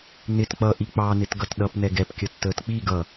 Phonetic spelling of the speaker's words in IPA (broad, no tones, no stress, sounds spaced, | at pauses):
n ɪ t k͡p ʌ ʔ i k͡p ɑ n ɪ t ɡ ʌ t ɗ ʌ p n ɛ ɡ ɛ p kʲ ə tː əː t k͡p i ɡ ʌ